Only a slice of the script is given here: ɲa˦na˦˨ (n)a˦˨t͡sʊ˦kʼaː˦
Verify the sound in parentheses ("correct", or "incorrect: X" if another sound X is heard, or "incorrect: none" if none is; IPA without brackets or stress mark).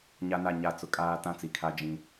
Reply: incorrect: ɲ